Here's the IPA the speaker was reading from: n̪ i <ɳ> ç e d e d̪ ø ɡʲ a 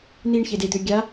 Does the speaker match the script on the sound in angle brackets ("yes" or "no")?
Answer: yes